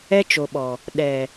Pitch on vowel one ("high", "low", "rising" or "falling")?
high